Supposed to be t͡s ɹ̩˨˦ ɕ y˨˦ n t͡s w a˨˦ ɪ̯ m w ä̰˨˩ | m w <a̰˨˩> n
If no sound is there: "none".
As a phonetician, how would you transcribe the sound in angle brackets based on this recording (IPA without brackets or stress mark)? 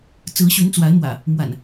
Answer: a̰˨˩